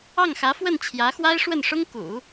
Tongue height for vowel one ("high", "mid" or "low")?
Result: low